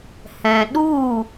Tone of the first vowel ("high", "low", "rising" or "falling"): low